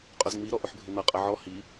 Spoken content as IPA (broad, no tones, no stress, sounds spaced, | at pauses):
qʼ ʊ z ŋ͡m i ɾ ɔ ʔ ʊ ħ bʱ ɪ n̪ ʌ qʼ ʌ ʕ ɔ h i